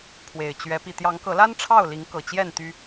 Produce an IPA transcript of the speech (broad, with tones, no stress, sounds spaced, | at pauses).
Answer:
pʰ w e˨˩ ɪ̯ t͡ɕ ɥ ɛ˨˦ p i˨˩ t̪ j ɑ˨˦ ŋ k ɤ˨˦ l a˦ n ʈ͡ʂʰ ɑ˥˨ ʊ̯ l i˨˦ ŋ k ɤ˨˩ t͡ɕ j ɛ˥˨ n t̪ y˦